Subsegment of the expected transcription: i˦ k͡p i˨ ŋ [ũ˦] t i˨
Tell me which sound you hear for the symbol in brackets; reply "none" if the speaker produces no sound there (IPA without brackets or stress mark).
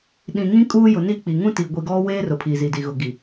ũ˦